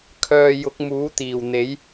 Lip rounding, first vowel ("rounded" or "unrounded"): rounded